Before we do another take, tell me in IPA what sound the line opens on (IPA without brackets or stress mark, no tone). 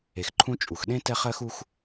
e